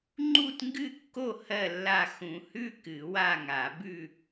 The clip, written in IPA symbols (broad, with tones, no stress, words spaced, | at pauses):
ŋ͡ǃu˥˨tŋɡɨ˥˨kːo˥˨ hɜ˥˨lːa˥˨ xũ˨˩˦hʉ˥˨ kɨ˨˩˦wa˥˨ŋa˨˩˦bʉ˥˨